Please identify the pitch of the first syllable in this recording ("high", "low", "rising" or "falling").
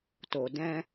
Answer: low